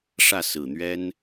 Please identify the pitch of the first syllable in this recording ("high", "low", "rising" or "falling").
falling